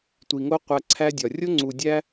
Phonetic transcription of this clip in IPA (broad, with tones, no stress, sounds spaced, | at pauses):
tʷ i˨ ŋ o˦ qʷ æ˧ ǀʰ æ˦ dʲ ɒ˨ rʲ o˦ ŋ͡ǀ u˨ dʲ æ˦